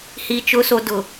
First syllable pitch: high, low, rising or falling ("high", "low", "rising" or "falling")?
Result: low